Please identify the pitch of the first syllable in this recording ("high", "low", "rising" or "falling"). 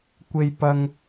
low